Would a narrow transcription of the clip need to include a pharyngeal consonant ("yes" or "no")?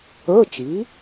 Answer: no